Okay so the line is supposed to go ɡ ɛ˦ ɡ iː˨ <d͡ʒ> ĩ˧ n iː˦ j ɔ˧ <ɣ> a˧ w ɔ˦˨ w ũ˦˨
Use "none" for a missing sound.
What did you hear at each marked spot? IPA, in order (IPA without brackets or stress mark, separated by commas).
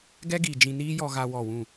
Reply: d͡ʒ, ɣ